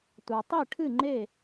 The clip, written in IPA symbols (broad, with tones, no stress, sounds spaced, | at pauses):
tʷ a˨ tˤ i˥˨ ʈʰ ɨ˥˨ ŋ͡ǃ e˥˨